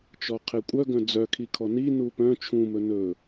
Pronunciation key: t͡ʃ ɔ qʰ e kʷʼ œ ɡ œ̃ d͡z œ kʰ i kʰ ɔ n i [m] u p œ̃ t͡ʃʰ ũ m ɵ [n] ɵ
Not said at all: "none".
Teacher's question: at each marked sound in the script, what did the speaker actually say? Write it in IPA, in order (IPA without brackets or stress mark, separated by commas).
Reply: n, n